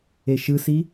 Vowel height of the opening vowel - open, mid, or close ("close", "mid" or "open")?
mid